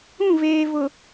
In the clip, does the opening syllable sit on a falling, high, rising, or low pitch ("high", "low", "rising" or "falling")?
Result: falling